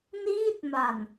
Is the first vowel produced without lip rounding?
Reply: yes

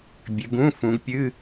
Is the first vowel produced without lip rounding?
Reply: yes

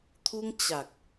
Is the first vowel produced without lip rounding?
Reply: no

